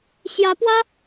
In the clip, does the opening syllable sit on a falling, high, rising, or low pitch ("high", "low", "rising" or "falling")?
rising